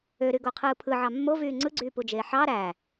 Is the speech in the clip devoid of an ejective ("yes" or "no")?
yes